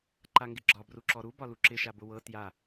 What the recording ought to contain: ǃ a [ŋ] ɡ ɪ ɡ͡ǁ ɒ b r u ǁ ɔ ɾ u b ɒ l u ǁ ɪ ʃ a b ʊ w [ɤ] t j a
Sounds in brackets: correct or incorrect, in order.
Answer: correct, correct

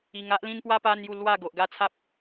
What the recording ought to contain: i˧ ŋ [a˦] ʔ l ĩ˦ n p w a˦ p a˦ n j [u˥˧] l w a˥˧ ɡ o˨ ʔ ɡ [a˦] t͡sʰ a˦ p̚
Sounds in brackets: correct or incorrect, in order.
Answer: correct, correct, incorrect: a˥˧

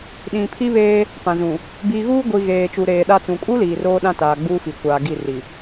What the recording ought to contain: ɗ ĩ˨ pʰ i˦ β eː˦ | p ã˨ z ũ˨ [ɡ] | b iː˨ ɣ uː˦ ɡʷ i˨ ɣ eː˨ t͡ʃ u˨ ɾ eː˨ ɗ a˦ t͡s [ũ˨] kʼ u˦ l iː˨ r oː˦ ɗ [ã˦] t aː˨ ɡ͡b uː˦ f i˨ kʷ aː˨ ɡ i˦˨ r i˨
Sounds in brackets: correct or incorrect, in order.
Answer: incorrect: none, correct, correct

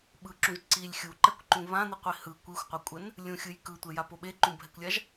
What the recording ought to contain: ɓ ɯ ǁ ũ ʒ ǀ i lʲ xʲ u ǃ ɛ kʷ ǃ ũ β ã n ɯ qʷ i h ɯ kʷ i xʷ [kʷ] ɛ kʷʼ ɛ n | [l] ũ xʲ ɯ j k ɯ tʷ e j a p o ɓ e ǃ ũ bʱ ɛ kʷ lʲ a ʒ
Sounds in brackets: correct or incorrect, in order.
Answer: incorrect: qʷ, incorrect: lʲ

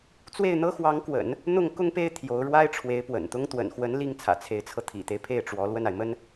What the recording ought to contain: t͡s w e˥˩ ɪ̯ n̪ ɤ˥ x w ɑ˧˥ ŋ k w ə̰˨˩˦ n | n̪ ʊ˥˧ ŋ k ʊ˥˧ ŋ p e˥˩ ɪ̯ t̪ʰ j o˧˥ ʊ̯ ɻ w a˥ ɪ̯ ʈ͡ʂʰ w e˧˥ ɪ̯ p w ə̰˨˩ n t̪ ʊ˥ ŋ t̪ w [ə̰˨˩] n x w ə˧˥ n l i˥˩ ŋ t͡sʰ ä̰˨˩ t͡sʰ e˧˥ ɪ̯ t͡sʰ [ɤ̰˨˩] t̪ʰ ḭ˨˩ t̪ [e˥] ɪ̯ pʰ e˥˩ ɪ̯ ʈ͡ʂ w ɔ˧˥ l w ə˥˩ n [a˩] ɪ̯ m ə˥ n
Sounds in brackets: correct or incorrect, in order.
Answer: correct, incorrect: ɤ˧, incorrect: e˦, correct

